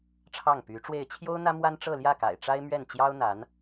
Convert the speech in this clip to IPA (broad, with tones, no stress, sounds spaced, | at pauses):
ʈ͡ʂʰ ɑ˥˩ ŋ p y˧˥ ʈ͡ʂ w e˥˩ ɪ̯ t͡ɕʰ j o˥ ʊ̯ n̪ ä˥ m w a˥ n ʈ͡ʂ ɤ˥˧ l j ä˥˩ k a̰˨˩ ɪ̯ ʈ͡ʂ a˥ ɪ̯ m ɥ ɛ˥˩ n t͡ɕ j ɑ˥ ʊ̯ n̪ a˧˥ n